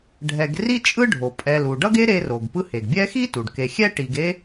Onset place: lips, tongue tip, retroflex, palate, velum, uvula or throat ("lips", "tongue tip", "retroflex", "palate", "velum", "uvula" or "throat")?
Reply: retroflex